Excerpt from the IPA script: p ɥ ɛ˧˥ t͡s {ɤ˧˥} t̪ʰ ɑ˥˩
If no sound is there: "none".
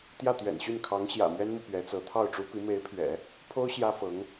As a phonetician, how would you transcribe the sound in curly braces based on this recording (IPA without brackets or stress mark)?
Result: ɤ˧˥